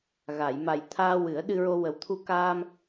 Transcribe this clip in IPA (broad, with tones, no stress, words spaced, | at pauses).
ɣa˨˩˨j ma˨˩jt̪ʰaː˧ wɨ˨˩˦ə̯ɗɨ˧ɹo˧ wə˨˩wt̪ʰu˧ kaː˧m